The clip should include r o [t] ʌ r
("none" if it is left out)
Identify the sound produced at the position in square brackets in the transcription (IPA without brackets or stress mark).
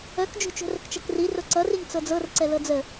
ǀ